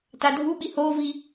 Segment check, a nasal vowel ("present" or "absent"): absent